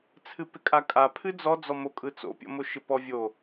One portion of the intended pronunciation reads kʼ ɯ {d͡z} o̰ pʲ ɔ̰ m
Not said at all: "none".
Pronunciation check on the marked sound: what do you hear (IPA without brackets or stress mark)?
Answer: t͡s